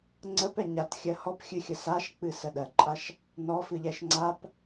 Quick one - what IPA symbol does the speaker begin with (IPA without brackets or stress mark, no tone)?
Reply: ŋ͡ǀ